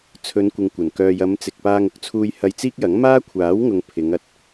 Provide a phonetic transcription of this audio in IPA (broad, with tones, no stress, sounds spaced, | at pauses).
t͡sʰ ɵ˨˧ n kʷ ɪ˨ ŋ kʷ ɐ˨˩ n k œː˨ j ɐ˨˧ m t͡s ɪ˨ k̚ p aː˧ ŋ ʊ˨˥ k̚ t͡sʰ uː˧ j h ɐ˧ j t͡s iː˥ k̚ j ɐ˨˥ ŋ m aː˥ kʷʰ aː˨˥ w ŋ ʊ˨ ŋ pʰ ɪ˨˧ ŋ ɐ˨ t̚